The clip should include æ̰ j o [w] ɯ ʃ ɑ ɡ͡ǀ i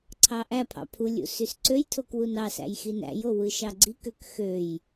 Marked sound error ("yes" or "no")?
no